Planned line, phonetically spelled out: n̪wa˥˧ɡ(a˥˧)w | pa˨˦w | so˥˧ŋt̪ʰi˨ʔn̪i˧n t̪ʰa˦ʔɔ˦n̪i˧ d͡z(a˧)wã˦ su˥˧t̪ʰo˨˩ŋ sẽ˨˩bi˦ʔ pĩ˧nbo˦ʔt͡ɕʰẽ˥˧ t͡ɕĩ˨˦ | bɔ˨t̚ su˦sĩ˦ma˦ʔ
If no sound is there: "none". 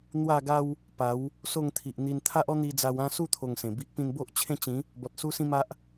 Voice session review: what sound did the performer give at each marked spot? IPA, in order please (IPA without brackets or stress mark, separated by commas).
a˦, a˧